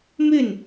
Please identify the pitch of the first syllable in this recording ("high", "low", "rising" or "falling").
falling